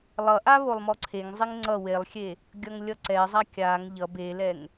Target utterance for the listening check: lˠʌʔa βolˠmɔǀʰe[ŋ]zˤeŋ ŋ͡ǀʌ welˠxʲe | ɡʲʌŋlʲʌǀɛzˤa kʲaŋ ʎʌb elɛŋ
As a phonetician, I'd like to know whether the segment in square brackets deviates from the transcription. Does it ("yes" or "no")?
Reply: no